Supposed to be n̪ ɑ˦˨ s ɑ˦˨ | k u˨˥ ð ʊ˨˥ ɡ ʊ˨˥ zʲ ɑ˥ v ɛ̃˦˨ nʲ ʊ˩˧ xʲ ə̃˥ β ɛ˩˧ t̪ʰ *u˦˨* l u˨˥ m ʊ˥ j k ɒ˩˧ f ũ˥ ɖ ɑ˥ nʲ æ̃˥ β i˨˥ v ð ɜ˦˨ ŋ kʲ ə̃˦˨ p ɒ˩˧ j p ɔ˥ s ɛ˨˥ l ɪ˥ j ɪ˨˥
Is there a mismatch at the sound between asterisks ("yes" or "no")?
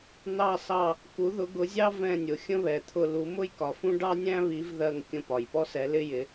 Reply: yes